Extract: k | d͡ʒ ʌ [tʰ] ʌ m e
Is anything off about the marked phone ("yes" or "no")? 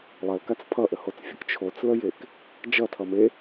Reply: no